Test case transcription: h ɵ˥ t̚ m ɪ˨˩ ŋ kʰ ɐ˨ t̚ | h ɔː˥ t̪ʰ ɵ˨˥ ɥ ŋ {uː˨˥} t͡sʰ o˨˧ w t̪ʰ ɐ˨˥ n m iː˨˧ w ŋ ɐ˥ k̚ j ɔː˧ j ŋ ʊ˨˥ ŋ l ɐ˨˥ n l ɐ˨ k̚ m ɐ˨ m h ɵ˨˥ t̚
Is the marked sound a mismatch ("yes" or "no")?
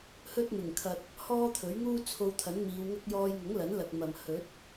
yes